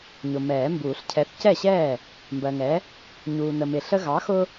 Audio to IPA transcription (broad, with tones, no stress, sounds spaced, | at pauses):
ɲ ʊ˨ m ɛː˨˩˦ m b uː˨˩˦ ɬ cʰ ɛ˨˥ θ c ɛ˥˩ ɕ ɛː˥˩ | m b ɜ˨ ŋ ɛ˨˥ | ɲ uː˨ n ə˨ m ɪ˨ ɬ ə˦ ɣ ɑ˨˥ x ʊ˦